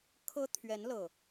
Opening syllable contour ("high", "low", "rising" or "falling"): high